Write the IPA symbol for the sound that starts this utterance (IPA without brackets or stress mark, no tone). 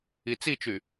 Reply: i